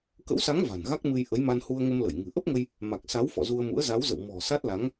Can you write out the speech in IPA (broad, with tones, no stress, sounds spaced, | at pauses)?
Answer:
k ə̰˧˥ w s a˨˦ ŋ v a̤˨˩ n ɣ a˦˥ k̚ m ɨ˧ j ʔ ə˨˦ j m a˧ n h u˧ ə̯ ŋ ə˧ m l ə˧˩ j ŋ ɨ̤˨˩ ʔ ə˦˥ p̚ ŋ ə˧ j | m a˨˩ k̚ s a˨˦ w f ɔ̰˧˨ z u˧ ə̯ m ṵ˧˥ ə̯ z a˨˦ w z ə̰˧˨ w m ɔ̤˨˩ s a˦˥ t̚ l a˨˦ ŋ